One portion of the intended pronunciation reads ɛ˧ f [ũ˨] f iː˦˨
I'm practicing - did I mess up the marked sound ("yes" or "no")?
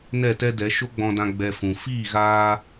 no